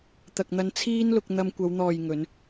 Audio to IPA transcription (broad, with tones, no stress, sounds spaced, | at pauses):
t̪ ɐ˨ k̚ n̪ ɐ˧ n t͡sʰ iː˥ n l ʊ˧ k̚ n̪ ɐ˧ m kʷ ɐ˨˧ w n̪ ɔː˨ j ŋ ɵ˨˧ n